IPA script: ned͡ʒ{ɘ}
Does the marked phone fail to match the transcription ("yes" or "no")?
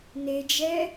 yes